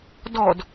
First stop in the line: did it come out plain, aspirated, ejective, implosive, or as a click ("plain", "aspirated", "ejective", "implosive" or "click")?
plain